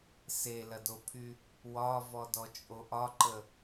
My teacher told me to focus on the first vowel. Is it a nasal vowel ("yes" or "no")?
no